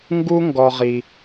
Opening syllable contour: high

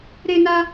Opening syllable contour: high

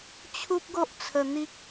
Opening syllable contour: high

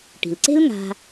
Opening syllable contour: low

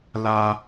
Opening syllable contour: high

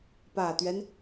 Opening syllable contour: low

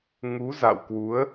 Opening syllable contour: rising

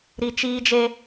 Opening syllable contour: low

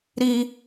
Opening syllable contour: high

